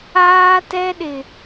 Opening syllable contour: high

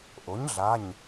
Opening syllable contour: rising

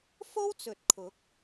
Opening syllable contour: high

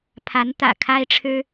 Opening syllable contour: rising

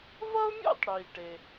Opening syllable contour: high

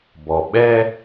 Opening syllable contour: low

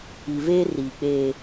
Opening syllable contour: low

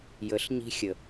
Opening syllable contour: rising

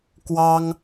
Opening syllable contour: high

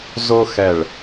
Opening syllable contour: high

